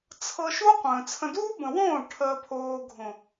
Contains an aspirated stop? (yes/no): yes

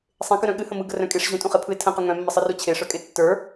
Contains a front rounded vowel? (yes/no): yes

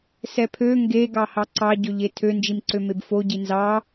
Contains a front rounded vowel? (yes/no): yes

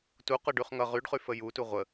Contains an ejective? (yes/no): no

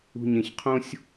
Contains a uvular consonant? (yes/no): yes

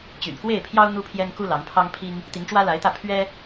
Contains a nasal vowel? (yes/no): no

